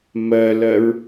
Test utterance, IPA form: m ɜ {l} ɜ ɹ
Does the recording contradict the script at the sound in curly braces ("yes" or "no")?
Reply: no